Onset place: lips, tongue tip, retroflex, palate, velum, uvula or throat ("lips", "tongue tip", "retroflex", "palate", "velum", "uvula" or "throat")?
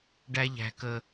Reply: retroflex